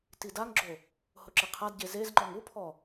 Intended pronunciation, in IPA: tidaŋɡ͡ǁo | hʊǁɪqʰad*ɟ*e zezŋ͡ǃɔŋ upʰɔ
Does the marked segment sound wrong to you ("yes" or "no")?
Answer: no